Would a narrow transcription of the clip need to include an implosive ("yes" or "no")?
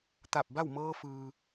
no